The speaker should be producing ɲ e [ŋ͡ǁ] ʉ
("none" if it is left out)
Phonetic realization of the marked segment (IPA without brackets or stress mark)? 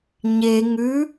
ŋ